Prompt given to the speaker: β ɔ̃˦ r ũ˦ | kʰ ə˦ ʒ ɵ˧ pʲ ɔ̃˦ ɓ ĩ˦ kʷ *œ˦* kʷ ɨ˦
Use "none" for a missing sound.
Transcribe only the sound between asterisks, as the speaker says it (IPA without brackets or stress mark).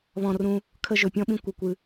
ə˦